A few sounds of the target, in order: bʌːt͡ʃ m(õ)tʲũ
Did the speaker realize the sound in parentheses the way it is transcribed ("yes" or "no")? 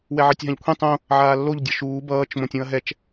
yes